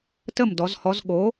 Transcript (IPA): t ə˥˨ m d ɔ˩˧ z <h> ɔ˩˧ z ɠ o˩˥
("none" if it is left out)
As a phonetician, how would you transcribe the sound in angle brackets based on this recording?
h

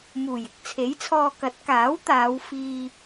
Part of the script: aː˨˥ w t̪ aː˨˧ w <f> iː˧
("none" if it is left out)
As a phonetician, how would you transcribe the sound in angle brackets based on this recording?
f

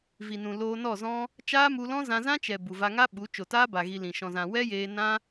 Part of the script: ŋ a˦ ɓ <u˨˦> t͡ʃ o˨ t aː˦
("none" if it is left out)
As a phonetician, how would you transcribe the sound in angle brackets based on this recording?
u˨˦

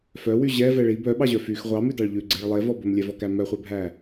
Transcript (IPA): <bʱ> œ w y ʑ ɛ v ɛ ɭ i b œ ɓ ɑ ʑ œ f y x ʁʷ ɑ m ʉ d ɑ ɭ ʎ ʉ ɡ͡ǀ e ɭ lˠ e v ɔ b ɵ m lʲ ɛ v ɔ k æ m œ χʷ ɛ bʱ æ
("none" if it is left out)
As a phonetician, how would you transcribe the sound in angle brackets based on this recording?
f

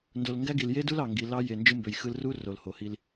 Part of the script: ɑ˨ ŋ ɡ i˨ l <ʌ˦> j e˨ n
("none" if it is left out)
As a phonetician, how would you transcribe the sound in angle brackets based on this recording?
ɑ˦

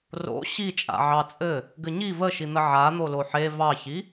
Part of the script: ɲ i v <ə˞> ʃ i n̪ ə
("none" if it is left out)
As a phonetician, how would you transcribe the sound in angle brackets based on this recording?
ə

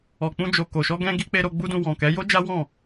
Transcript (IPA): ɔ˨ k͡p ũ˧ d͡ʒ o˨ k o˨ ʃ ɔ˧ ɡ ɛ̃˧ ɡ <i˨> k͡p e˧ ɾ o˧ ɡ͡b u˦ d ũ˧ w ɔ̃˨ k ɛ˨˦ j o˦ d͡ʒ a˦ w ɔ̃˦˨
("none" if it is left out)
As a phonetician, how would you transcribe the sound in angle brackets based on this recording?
i˧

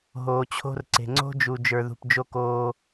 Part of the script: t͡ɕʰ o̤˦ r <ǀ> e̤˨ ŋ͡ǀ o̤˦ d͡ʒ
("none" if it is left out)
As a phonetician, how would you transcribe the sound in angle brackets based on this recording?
ǀ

